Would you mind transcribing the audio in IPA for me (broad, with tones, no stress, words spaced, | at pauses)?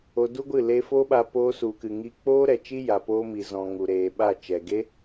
o˧du˦ɡʷɨ˦˨ le˧fo˦ɓa˧ poː˧su˨kɨ˨ŋi˧ k͡poː˦ɾɛ˨t͡ʃi˦ja˨ poː˧mi˨zɔ̃˨ ŋu˨ɾeː˨ɓa˦˨ t͡ʃɛ˨ɡe˦